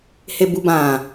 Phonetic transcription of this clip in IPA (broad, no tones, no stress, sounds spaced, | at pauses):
h e b u b ã